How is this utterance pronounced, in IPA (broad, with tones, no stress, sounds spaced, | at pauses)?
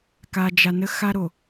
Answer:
k a˨ d͡ʒ a˨ n ə˦ x a˦ ɾ o˨